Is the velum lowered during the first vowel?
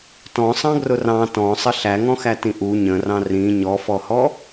yes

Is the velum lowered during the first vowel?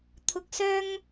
no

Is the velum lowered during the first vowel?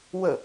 no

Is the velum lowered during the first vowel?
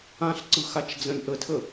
yes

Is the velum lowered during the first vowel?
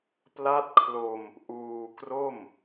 no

